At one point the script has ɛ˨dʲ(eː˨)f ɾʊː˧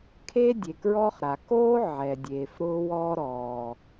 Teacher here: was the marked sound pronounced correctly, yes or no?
yes